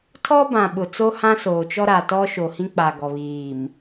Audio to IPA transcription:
tʰ ɔ˦ b ã˨ ɓ ʊ˨ t͡s o˦ h ã˦ s oː˨ t͡ʃ ɔ˦ ɾ a˨ t ɔ˦ ʃ o˨ h ĩ˦ k͡p a˨ ɡ ɔ˨ β iː˨ m

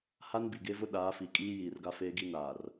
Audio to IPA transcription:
h a˦ n b i˨ ɡ e˦ v ʊ˦ ɗ aː˨˦ f i˨ kʼ iː˦ j iː˨ r ɡ a˦ f eː˦ ɡ i˦ n aː˨ r

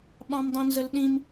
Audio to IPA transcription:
ɓ ɑ̃ m dˤ ĩ n z ə l ɗ ĩ m

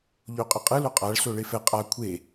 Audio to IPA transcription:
ʎ o qʼ ɯ qʼ ɯ l o qʼ a ɭ s o ɭ e f ɛ qʼ a kʷʰ e

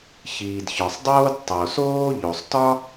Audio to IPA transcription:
ç iː˩ d ç ɒ˩ sˤ dˤ oː˥ d tˤ o˩ s oː˥ ʎ o˩ sˤ t ɒ˥

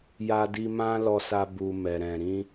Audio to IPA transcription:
j a˧ d i˧ m ã˦ l ɔ˧ s a˧ b u˨ m ɛ˨ ɾ ɛ̃˨ ɾ ĩ˧

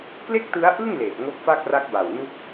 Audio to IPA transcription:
k l e˥˩ k̚ t ɯ˦˥ a̯ ʔ ɯ˥˩ ŋ l eː˨˩ t̚ ŋ o˦˥ k̚ f a˥˩ k̚ r a˦˥ k̚ b a˨˩ w n u˦˥ k̚

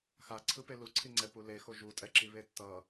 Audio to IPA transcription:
x a ǀʰ ɯ p e l u ǀʰ i ŋ͡ǀ ɛ p u l e x o ʒ u tʼ ɛ ǁ i β e tː ʌ

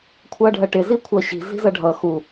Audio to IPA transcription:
kʷʰ ʌː ɖʱ ɜ ʈ ɪ z i kʷʰ ʌː ɕ i̤ z i̤ z ʌ ɖʱ ʌ x u

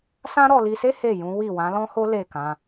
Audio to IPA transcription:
s ã˦ ɾ ɔ˧ l i˧ s e˦ h e˦˨ j ũ˨˦ w i˦˨ w ã˨˦ l ɔ̃˦ h o˦ l e˦˨ k ã˧

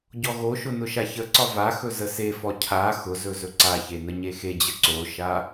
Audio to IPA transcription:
ɟ ɔ ɣ o ʃ ʊ n ʊ ʃ a ç ə ǀ ɒ v a x ɵ z ə s e f ɔ cʰ a x ʊ z ɵ z ɵ ǀ a ç e n ə ɲ e x e d͡ʑ ə ǀ o ʃ a

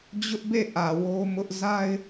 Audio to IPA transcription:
d͡ʑ ʊ˦ ʔ b e˦˨ ʔ ä˨ w o˦ m ʊ˦ ʔ z a˦ ɪ̯

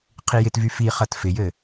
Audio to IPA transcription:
qʰ i j ɪ t v y f i χ ɐ t f ɪ j ɘ

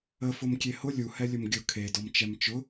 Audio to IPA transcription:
ə f ʊ m kʲ e h ʊ lʲ u h ɛ lʲ ʊ m ɡʲ ʊ kʰ e d ɔ m t͡ʃ ɛ m t͡ʃ ʊ

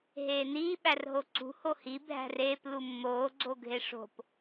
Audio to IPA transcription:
ɦ eː n iː ɓ æ r ɦ o ǀ ṳ h o h i bʱ æ̤ r eː p l u mː oː ɡ͡ǀ o ɡʱ e ʂ o̤ p

